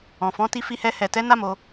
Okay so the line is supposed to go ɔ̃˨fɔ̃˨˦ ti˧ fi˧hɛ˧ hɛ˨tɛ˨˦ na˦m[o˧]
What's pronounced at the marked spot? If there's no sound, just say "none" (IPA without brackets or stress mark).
o˧